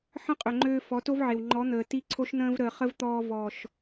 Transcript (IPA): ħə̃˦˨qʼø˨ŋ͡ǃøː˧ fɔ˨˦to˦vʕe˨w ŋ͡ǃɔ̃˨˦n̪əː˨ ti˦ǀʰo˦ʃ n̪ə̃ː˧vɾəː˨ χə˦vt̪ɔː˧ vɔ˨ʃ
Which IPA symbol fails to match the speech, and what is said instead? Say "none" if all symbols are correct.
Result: ɔ̃˨˦ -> ɔ˨˦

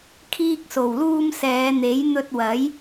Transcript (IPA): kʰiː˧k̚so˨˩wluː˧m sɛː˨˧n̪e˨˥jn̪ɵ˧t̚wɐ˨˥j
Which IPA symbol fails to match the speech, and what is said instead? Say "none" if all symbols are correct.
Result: none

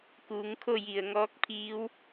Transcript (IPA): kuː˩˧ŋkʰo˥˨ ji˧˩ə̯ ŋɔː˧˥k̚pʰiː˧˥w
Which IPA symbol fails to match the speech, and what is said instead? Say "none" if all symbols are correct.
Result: none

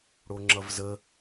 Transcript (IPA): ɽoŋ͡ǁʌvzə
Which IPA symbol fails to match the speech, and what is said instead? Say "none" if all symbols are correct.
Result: none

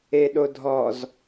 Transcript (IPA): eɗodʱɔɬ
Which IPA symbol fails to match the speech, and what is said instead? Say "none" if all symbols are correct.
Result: ɬ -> z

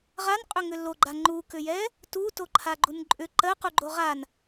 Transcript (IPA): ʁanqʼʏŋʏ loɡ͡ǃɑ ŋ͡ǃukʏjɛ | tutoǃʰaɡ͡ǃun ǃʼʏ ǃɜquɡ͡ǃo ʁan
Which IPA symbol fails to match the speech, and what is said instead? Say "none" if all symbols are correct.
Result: ɑ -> a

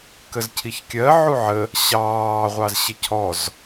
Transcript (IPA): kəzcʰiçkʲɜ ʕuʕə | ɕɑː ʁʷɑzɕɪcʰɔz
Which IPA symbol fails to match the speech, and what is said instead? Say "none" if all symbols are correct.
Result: none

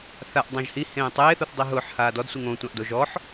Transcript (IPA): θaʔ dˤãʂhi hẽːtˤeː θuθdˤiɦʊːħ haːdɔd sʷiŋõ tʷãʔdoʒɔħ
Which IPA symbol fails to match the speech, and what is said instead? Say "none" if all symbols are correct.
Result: ʂ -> ʒ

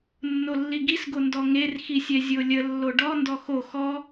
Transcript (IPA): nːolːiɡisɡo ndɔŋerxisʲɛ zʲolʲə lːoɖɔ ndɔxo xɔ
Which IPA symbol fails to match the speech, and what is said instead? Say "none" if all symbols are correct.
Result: none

